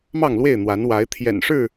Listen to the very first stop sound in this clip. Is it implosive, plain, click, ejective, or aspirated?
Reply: aspirated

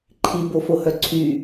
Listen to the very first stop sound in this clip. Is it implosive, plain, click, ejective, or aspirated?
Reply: click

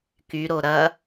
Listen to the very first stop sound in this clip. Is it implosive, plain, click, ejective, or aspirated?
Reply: plain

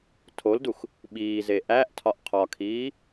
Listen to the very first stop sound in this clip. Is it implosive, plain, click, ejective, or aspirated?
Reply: aspirated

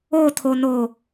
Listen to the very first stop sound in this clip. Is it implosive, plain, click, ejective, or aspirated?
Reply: aspirated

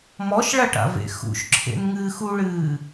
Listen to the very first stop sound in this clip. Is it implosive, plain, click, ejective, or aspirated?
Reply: plain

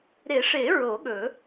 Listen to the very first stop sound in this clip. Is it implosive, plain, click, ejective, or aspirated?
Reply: implosive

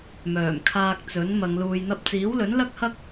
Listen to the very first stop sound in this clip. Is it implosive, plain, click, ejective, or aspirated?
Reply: aspirated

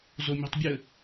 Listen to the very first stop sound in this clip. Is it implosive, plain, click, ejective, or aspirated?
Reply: plain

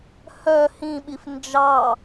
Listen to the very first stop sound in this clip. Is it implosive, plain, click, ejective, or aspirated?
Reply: implosive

